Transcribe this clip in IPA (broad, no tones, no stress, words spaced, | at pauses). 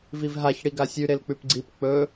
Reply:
vivɦaç ɽiɡasʲʉ ɾelk͡pʉpɡ͡ǀip k͡pɵ